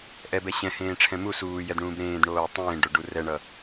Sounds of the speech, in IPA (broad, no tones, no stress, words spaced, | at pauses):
ʔɛbɛ ɕɛ̃hẽːʈ͡ʂʰɛ̃ mu suːjɛdɳũːb ɾẽːdɳoː tˤẽːɖoɖu rɛɳʌ